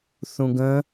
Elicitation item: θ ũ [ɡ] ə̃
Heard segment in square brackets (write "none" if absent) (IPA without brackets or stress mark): ɡ